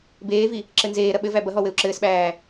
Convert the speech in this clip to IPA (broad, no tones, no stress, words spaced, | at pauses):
beːvi | ǁɘnzeːɾɐ ɓɘvæ bɐɦɔ wɘu̯ǁɘːsɓæː